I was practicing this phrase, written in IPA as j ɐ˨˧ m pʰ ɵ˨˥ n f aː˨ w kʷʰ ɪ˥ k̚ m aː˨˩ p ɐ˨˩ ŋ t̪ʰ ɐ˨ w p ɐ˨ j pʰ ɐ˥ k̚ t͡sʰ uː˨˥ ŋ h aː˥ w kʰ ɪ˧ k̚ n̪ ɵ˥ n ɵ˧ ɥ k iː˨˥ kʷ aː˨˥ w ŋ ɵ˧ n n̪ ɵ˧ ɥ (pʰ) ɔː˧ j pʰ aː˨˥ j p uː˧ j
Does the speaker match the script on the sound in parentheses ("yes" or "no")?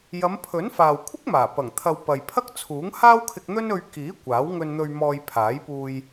no